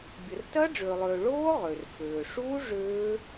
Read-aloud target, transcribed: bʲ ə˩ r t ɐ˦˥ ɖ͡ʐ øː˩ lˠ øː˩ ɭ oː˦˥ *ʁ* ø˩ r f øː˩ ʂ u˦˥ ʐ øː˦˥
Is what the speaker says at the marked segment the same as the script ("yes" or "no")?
yes